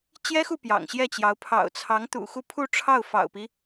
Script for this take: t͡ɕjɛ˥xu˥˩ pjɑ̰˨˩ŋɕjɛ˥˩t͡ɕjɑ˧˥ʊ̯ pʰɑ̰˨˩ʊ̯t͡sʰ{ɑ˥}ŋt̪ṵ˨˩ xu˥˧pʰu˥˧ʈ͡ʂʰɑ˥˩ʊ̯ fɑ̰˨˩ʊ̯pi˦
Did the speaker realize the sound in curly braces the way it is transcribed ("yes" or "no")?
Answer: no